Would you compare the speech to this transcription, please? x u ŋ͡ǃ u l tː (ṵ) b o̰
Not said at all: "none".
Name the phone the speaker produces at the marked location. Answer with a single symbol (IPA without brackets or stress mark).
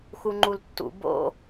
ṵ